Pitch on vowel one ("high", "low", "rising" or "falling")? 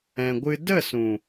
low